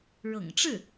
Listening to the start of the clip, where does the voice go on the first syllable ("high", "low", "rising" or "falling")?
low